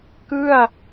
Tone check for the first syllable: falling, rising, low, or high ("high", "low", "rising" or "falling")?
falling